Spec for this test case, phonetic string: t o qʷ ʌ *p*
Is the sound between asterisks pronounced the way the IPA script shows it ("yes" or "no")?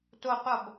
no